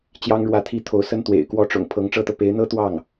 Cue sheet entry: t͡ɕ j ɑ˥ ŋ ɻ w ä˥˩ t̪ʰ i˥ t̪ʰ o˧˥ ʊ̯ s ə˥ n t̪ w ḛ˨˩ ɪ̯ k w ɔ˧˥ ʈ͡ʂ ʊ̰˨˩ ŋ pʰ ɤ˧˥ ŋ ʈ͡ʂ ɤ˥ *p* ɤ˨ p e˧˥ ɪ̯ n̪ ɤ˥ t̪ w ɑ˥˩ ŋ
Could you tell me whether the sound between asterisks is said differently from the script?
yes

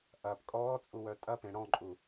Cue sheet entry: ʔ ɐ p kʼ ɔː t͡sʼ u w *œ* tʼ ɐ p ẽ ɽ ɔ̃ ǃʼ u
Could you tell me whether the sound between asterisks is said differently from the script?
no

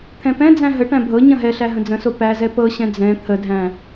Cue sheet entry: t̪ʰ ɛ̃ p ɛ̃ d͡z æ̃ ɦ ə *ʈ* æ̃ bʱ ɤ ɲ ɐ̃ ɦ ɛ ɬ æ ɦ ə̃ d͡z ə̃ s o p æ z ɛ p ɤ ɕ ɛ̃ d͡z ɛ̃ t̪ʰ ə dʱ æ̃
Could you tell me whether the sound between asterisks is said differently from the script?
no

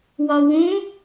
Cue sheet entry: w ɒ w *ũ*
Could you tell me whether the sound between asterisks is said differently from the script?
no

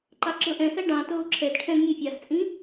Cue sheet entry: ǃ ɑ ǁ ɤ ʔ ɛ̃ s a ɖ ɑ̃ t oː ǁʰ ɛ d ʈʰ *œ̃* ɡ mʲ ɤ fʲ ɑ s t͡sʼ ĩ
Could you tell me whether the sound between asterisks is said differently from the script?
yes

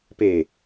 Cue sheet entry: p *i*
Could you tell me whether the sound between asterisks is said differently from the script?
yes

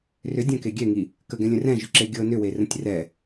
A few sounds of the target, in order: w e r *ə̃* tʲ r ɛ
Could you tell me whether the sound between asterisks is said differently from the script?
no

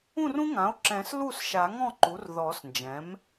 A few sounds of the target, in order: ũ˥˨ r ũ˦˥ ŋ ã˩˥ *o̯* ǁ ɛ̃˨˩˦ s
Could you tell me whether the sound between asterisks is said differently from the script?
no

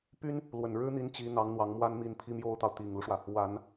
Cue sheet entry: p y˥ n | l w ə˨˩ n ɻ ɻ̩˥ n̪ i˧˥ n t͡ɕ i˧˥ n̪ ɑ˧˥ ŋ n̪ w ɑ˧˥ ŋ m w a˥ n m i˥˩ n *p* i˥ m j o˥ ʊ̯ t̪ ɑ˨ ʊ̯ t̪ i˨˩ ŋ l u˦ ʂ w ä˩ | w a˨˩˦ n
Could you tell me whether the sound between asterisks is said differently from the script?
yes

